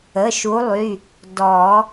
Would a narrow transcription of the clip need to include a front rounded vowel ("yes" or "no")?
yes